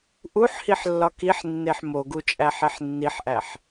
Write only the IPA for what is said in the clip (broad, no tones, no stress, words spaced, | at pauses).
ʔuħhiħlːɒ kiħnːeħ moɡut͡ʃʼæħeħ nːiħʔæħ